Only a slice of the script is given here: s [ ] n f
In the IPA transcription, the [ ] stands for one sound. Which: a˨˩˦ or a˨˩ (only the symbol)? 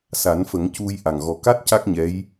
a˨˩˦